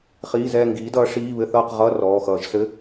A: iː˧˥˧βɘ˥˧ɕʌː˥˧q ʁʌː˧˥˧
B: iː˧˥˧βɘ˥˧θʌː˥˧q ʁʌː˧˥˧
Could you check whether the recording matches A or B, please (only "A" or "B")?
B